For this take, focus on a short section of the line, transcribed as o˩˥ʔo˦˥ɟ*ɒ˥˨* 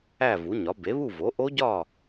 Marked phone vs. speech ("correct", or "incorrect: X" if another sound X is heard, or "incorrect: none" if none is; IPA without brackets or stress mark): correct